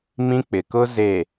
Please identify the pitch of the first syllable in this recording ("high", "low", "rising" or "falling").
high